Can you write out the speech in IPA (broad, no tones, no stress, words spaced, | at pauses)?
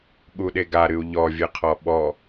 ɠuɗeɡa ɾɨu̯ʎɔ vʲɨqʰɔɓɔ